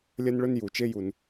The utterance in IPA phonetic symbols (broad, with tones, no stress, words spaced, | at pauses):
lʲɐ˥nɭɵ˥n ju˩t͡ʃe˥ju˩n